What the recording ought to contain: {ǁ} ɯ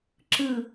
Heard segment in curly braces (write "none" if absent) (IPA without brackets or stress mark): ǁ